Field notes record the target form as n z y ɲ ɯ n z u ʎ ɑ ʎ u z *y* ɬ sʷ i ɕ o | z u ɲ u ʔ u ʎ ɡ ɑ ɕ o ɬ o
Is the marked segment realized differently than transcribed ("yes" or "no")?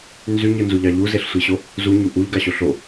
yes